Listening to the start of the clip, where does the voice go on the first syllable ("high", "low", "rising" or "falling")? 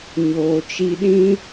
low